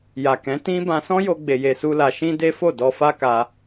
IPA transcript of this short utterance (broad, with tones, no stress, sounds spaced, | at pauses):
j a˨ k ɛ̃˨˦ t ĩ˦ b ã˧ s ɔ̃˦ j o˧ ɡ͡b e˧ j e˧ s u˦ l a˧ ʃ ĩ˦ d e˦ f o˦˨ d ɔ˧ f a˦ k a˧